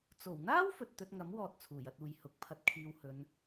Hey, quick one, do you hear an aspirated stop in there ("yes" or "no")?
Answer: yes